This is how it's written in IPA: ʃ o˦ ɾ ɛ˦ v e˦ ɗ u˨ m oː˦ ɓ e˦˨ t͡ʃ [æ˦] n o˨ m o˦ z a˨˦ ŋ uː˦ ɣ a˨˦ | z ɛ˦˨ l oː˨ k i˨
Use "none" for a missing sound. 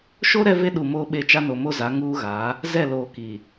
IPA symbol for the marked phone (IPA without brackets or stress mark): a˦